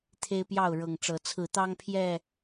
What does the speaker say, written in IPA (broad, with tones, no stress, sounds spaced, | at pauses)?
t̪ʰ e˦ ɪ̯ p j ɑ˥˨ ʊ̯ ɻ ɤ˨˩ ŋ ʈ͡ʂ ɤ˨˦ t͡sʰ ɹ̩˨˦ t̪ ɑ˦ ŋ pʰ j ɛ˥˨